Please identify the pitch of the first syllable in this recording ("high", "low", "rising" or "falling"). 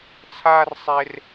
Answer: high